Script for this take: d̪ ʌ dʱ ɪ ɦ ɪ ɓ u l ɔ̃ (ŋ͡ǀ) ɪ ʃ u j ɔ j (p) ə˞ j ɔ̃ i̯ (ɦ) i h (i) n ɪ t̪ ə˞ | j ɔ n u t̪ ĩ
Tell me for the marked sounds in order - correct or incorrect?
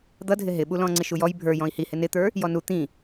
correct, incorrect, incorrect, incorrect

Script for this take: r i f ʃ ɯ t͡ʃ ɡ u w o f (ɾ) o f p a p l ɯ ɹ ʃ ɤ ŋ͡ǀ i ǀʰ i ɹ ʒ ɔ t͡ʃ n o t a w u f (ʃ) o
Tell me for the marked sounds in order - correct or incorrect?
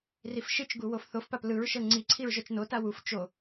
incorrect, incorrect

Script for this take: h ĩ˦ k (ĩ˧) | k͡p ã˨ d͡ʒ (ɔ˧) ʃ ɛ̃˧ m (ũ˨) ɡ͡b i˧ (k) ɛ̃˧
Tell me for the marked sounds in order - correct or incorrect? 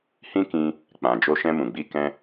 correct, incorrect, correct, correct

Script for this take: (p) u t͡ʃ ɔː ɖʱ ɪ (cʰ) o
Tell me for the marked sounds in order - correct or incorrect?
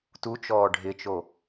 incorrect, incorrect

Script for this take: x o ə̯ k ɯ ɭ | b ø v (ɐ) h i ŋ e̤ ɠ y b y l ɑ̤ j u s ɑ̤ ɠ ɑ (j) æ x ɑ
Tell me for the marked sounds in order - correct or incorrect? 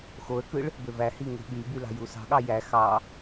incorrect, correct

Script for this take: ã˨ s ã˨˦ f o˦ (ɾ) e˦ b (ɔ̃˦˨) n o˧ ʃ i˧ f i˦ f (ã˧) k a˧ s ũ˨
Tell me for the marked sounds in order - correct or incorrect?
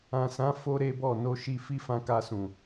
correct, incorrect, correct

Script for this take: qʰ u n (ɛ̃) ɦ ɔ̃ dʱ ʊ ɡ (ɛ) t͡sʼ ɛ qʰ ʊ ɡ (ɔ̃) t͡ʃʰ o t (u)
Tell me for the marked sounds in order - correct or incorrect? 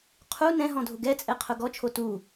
correct, correct, incorrect, correct

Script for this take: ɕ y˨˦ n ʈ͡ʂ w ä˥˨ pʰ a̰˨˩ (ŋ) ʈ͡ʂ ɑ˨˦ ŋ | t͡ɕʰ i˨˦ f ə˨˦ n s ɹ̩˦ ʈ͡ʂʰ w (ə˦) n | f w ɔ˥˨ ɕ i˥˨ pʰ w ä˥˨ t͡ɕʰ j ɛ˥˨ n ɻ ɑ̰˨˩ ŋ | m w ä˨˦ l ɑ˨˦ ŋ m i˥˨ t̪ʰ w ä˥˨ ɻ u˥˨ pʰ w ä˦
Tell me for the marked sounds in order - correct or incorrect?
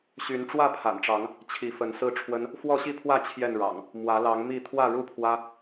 incorrect, correct

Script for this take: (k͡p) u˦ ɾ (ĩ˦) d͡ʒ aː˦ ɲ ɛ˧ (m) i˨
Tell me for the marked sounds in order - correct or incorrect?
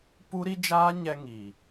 incorrect, incorrect, incorrect

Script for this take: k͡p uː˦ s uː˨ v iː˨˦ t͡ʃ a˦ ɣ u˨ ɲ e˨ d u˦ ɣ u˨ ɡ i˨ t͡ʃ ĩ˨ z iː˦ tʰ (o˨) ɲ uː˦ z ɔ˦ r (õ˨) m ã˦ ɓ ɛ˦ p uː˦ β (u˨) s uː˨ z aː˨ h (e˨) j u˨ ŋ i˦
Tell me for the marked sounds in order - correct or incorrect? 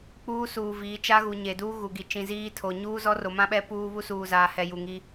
correct, incorrect, incorrect, incorrect

